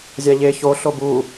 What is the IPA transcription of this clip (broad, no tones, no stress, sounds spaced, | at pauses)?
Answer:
zʲ a ʎ e ç o ɬ o b u